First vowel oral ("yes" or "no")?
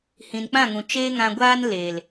no